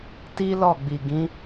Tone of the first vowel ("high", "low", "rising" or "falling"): high